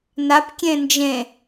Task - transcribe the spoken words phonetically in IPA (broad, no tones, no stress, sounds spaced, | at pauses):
n a p kʲ ẽ n d͡ʒ ẽ